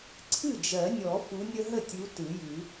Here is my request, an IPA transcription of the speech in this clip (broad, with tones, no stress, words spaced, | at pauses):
ǀʰɨ˥˩d͡ʒɜ˨˩˦nʲɔ˨˩˦ fu˨˦nʲə˦ ɦə˥˩tʲu˨˦ tɯ˨˩˦jɨ˨˩˦